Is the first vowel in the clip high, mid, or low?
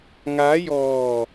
low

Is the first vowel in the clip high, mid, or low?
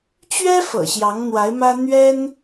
mid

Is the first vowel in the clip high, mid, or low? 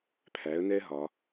low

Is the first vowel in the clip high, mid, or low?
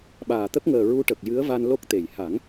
low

